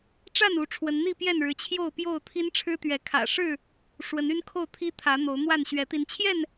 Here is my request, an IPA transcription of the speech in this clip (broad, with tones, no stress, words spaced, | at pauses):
ʈ͡ʂa˥˨nu˨˦ ʈ͡ʂʰwə˨˦nn̪i˥˨pjɛ˥˨nɻɻ̩˨˦ t͡ɕʰjo˥˨ʊ̯pjo˥˨ʊ̯ t̪ʰi˦nʈ͡ʂʰɻ̩˦t̪ɥɛ˨˦kʰä̰˨˩ ʂɻ̩˥˨ | ʂwə˨˦ny˦nkʰo˥˨ʊ̯ t̪ʰi˦t̪ʰä˨˦ n̪o˨˦ʊ̯n̪wa˥˨nɕɥɛ˨˦ t̪i˨˦n t͡ɕʰjɛ˥˨n